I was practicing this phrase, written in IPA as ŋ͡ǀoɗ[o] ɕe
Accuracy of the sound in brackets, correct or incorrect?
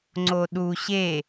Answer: incorrect